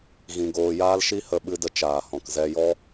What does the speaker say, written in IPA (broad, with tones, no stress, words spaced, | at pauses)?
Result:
ɣĩ˧ɡoː˧jaː˦l ʃi˦hə˧ɓɨ˧də˧ t͡ʃaː˨hɔ̃˨kzɛ˧jɔ˦